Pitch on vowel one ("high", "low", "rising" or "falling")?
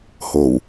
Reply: low